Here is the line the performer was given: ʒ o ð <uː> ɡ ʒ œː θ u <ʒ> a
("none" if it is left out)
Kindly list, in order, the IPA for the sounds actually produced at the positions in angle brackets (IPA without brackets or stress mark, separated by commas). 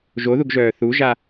u, ʒ